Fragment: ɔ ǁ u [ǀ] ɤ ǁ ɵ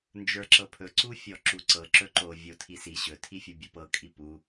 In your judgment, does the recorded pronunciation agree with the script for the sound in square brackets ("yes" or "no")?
yes